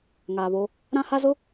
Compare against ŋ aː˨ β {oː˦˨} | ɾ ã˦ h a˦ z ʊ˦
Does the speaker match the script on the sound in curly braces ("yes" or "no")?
no